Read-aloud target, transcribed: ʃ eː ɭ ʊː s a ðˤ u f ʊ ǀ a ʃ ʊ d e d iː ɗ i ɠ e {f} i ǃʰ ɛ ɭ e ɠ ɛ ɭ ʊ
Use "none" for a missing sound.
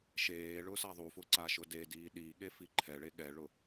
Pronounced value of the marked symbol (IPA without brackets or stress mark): f